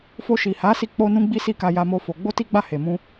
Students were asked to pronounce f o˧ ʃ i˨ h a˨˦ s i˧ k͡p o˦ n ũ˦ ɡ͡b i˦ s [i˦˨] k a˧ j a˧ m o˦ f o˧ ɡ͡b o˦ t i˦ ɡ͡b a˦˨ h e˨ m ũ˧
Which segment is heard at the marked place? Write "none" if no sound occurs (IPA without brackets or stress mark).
i˦˨